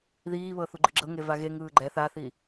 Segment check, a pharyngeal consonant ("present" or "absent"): absent